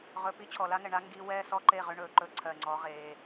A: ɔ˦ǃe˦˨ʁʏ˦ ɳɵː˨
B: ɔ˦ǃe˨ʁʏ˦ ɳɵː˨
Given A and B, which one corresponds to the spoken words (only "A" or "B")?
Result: A